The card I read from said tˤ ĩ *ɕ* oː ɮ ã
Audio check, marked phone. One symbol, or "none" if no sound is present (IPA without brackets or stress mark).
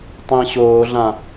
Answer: ɕ